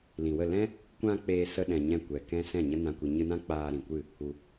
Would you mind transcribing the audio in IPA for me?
l ĩ˨ w ə˦˨ l ɛ̃˦ | kʷ ã˧ k͡p eː˧ s ə˧ ɗ ɛ̃˨ ɲ ɛ̃˦˨ kʷ ɛ˨ k ɛ̃˦ s ɛ̃˦˨ ɲ ə˦ n ã˧ kʷ i˨ ɲ ɨ˧ n ã˦ k͡p aː˧ ɾ ĩ˨ kʷ ɨ˦˨ | u˨

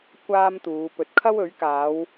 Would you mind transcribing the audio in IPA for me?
kʷ aː˥ m t̪ uː˨˧ p ɵ˨ t̚ kʰ ɐ˥ w ɵ˨˥ ɥ k aː˨˧ w

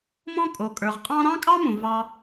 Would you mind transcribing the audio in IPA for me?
m ɔ̃˥ kʼ o˩ kʼ ə˞˩ ʁ qʼ ɑ̃˥ ɾ ɑ̃˥ kʼ ɑ˥ m ũ˩ v ɑ˧

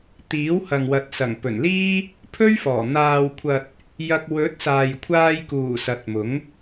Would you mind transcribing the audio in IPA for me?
t̪ iː˨˥ w h ɐ˨ ŋ w ɐ˨˥ t̚ s ɐ˨˩ ŋ p ɵ˨˩ n l iː˥ | pʰ ɵ˥ ɥ f ɔː˨˩ n̪ aː˨ w kʷʰ ɐ˨ t̚ | j ɐ˧ k̚ w ɵ˨˥ t̚ s aː˨ j kʷʰ aː˧ j k uː˨˩ s ɐ˨˥ t̚ m ʊ˨˥ ŋ

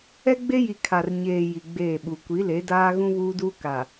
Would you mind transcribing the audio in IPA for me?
ɛ˦ ɡ͡b e˦ j i˨ kʰ a˨ r ɲ eː˨ j i˨ ɡ͡b eː˦˨ ɓ u˨ kʷ i˨˦ l e˨˦ d aː˦ ɣ ũ˦ β uː˦ d uː˦ k a˨

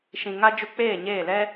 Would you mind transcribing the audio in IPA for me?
ʃ ĩ˨ ŋ a˦ d͡ʒ u˧ k͡p eː˦˨ ɲ eː˦˨ l ɛ˦

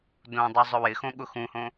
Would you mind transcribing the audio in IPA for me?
d õ dˤ u zˤ ʊ w ɪ x õ ɠ ʊ x ũ h õ

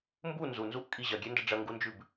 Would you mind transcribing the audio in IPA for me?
m b u n z u n z u ʔ kʼ i ʑ ɐ ɡʲ e n d ɐ ɖ͡ʐ ɐ ŋ ɡ u n d͡ʒ ʉ b

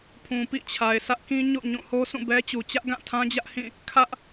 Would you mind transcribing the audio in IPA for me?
pʰ ũ˨ p ḭ˦˨ t͡ɕʰ a˨ ɪ̯ s ä˦ ʔ k ĩ˦ ɲ o̰˦˨ ɲ ũ˦˨ h o˦ s ũ˦˨ b ɛ˦ t͡ɕ u˨ t͡ɕ ä˦ ʔ ɡ ã˦˨ tʰ ã˦ d͡ʑ ä˦ ʔ h ĩ˦˨ | kʰ ä˦ ʔ

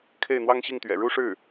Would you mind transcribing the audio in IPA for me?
kʰ e˥˩ ɪ̯ n̪ w ɑ˥ ŋ ɕ i˥˩ ŋ t̪ ɥ ɛ̰˨˩ ɻ u˥˧ ʂ ɻ̩˥˩

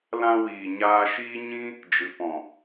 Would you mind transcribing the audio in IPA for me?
l ã˧ w iː˨ ɲ aː˧ ʃ iː˦ ɲ ĩ˦ | d͡ʒ ɨ˨ p ɔ̃˨

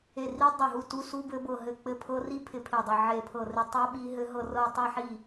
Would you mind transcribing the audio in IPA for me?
e˦˨ r i˦˥ dˤ e˦˨ ɦ u˦˨ t u˦˥ s u˦˥ b ɘ˦˥ b ɤ˦˨ ɦ ɘ˦˨ k͡p ɘ˦˨ pʰ ɤ˦˥ r i˦˥ pʰ ɪ˦˨ pʰ e˦˨ dˤ ɪ˦˨ ʕ e˦˨ pʰ ɤ˦˨ r ɪ˦˨ tˤ ɤ˦˥ ɓ i˦˥ ɦ ɘ˦˥ ɦ ɤ˦˨ r ɤ˦˨ tˤ i˦˨ ħ i˦˨

